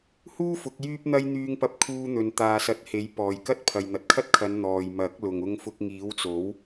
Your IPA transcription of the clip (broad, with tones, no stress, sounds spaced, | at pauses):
h uː˥ f ʊ˨˥ k̚ j yː˥ p̚ n̪ ɐ˥ j n̪ yː˧ ŋ p ɐ˧ p̚ kʰ uː˧ n̪ ɵ˨ n t̪ aː˨ s ɐ˨˥ t̚ h e˨˥ j p ɔː˨ j k ɐ˥ t̚ pʰ ɐ˨ j n̪ ɐ˨ t̚ kʰ ɐ˥ t̚ kʰ ɐ˨˧ n n̪ ɔː˨ j m ɐ˨˥ k̚ l ʊ˨ ŋ ʊ˧ ŋ f ʊ˧ k̚ ŋ iː˨˥ w t͡s o˨˥ w